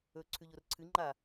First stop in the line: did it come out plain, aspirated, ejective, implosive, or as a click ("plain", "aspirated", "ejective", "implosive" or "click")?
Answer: click